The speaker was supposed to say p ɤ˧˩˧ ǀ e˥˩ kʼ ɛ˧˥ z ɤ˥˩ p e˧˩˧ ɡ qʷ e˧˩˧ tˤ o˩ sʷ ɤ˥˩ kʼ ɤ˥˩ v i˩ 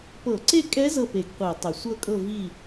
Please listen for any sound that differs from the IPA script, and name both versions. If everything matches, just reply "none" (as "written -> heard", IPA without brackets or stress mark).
i˩ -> i˥˩